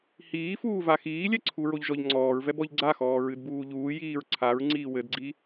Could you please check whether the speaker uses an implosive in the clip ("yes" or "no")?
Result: no